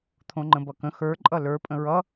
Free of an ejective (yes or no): no